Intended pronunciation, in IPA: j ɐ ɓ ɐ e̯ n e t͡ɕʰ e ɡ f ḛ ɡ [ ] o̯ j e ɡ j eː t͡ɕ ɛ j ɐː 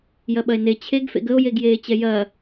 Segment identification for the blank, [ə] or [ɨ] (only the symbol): ə